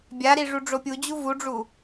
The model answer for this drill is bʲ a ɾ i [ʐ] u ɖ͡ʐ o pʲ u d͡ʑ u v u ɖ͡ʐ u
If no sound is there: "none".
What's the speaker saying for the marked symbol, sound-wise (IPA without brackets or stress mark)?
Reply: ʐ